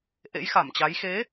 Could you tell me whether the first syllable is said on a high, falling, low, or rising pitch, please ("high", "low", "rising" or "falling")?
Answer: rising